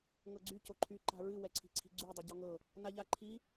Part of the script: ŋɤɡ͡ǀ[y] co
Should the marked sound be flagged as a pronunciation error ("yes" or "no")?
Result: no